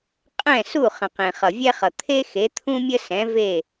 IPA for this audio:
qʼ ɛ̃˥˩ s u˥˩ χ ə̃˩ q ẽ˩ χ ʌ˩ vʲ ɛ˥ χ ʌ˩ t̪ʰ e˥ x e˩˥ t̪ʰ ũ˥ mʲ ə˥ s ɛ̃˩˥ v e˥˩

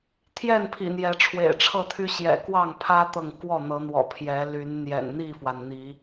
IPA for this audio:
t̪ʰ j ɛ˥˨ n pʰ ḭ˨˩ n̪ j ɛ˨˦ ʈ͡ʂʰ w ḛ˨˩ ɪ̯ ʈ͡ʂʰ ɤ˥˨ t̪ʰ y˦ ɕ j ɛ̰˨˩ k w ɑ˥˨ ŋ pʰ ä˦ t̪ ɤ˨ ŋ k w ɔ˥˨ n̪ ɤ˨˦ n̪ w ɔ̰˨˩ pʰ j ɛ˨˦ l y˨˦ n n̪ j ɛ̰˨˩ n n̪ i˥˨ f w a˩ n n̪ i˨˦

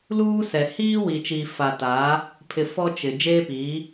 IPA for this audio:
l uː˦ s ɛ˨ h iː˦ w i˨ t͡ʃ iː˨ f a˨ t aː˨˦ | pʰ ɪ˨ f ɔ˦ t͡ʃ ɪ˨ d͡ʒ eː˦ p iː˨˦

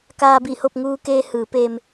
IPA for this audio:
k aː˧ b i˧˩ h o˥˨ p̚ ŋ uː˧ k eː˧ h ɯː˩˧ p eː˧ m

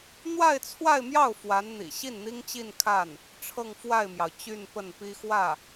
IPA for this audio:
n̪ w a˥˧ ɪ̯ t͡sʰ w a˥˧ ɪ̯ m j ɑ˥˩ ʊ̯ f w a˧˥ n n̪ ḭ˨˩ ɕ i˥˩ n n̪ i˥ ŋ t͡ɕ i˥˧ n kʰ a˥˩ n | ʈ͡ʂʰ ɤ˥˧ ŋ f w a˥˩ ɪ̯ m j ɑ˩ ʊ̯ t͡ɕ y˥˧ n p ə˥˩ n p i˥ x w ä˥˩

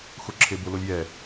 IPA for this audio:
x ʊ ǁʰ e b ʊ l o lʲ j ɛ

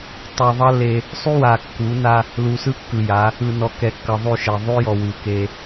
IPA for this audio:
tˤ u˨ ðˤ ʌ˦ l e˦ | sˤ y˦ w a˨ kː u˨˦ n a˦ | l u˨ s ɯ˦ kː ɯ˨ j a˨˦ | ɯ˨ n ɔ˨ k ɛ˨ kː ʌ˨ ðˤ ʉ˦˨ ʃ ɛ˨ ðˤ ʉ˦ j ɔ˨ w ʉ˨ k e˦

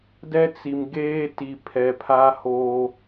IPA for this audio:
d ɛ˦ t͡s i˨ m ɡ eː˦ t i˨ pʰ ɛ˨ pʰ a˦ h oː˦

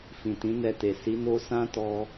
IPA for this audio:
f ĩ˨ t ĩ˨˦ n ɛ˧ t e˨ s i˨˦ n o˦ s ã˦ t ɔ˧

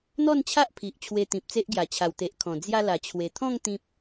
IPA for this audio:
n̪ ɔ˥˧ n t͡ɕʰ a˦ ʔ pʰ i˨ ʔ t͡ɕʰ w e˧ t̪ ĩ˨ p̚ t͡s e˦ ʔ ɡ j a˨˩ t͡ɕʰ a˨˩ w t̪ e˨ ʔ kʰ ɔ̃˨˩ d͡z j a˧ l a˨˩ t͡ɕʰ w e˨˩ t̪ʰ ɔ̃˥˧ ŋ t̪ ĩ˦ p̚

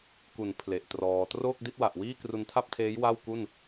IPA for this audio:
k u˩˦ n pʰ l e˨˩ ʔ t r ɔː˧ t r oː˥˩ k̚ d i˥˩ t̚ w a˨˩ ʔ w iː˥˩ k r u˧ n tʰ a˥˩ p̚ tʰ eː˦˥ j w a˥˩ w k u˥˩ n

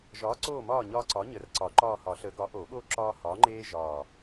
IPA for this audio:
ʒ ɒː˨˥ ǀ oː˦˨ m ɒː˦˨ ɲ ɒː˦ ǀ ɒ˨˥ ɲ ə˨˩˦ r ǀ ɒ˨˩˦ ǃ ɒː˦˨ h ɒ˨˩˦ ɬ əː˨˥ ɡ ɒ˨˥ ʔ o˨˩˦ ɠ oː˦ ǁ ɒː˦ h ɒː˨˥ ŋ͡ǃ eː˦ ʒ ɒː˨˩

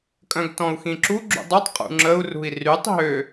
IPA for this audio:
kʼ œ̃ ɡ t ɔ̃ u̯ x ĩ ǁ u ɡ͡ǁ ṵ dˤ u tˤ qʼ ṵ ŋ͡ǁ ə u̯ r ṳ i̯ r y tˤ ɦ ø

